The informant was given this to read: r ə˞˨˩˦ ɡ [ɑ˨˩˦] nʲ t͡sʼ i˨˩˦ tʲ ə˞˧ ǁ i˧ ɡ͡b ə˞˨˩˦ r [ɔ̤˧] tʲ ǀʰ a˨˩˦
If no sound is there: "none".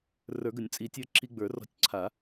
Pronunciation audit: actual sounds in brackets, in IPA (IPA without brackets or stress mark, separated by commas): ə˨˩˦, ɔ̤˧